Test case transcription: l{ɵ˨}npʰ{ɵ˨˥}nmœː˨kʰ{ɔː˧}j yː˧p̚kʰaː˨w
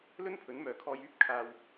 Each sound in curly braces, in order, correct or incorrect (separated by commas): incorrect, correct, correct